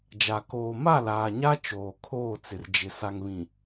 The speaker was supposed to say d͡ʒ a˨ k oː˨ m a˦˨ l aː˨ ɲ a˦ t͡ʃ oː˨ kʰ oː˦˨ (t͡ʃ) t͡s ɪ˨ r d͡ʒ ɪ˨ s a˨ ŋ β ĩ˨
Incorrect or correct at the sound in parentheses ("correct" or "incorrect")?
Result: incorrect